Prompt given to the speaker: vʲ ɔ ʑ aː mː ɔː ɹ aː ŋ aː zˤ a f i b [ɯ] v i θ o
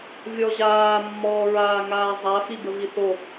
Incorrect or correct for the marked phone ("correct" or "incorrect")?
incorrect